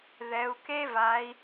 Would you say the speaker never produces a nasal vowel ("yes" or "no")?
yes